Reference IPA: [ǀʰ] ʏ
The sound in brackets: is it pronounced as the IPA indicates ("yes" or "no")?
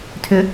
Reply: no